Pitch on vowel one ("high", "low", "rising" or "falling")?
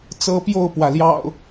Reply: high